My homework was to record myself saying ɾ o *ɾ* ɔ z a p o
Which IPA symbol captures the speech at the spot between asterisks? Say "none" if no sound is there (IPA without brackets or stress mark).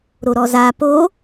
ɾ